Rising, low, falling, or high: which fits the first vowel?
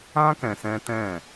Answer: high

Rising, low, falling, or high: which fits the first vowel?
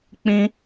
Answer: high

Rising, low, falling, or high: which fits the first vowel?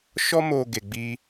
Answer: high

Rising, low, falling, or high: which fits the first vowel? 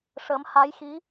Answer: rising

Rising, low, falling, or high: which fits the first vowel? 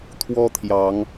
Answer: high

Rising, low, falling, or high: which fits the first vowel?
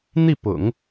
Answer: falling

